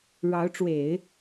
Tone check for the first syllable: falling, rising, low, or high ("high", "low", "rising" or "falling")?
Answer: rising